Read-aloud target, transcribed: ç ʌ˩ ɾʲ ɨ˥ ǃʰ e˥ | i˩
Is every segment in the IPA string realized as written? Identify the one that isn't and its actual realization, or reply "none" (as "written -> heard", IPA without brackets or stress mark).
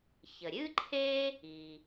ʌ˩ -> ə˩